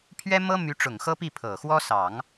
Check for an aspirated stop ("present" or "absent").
present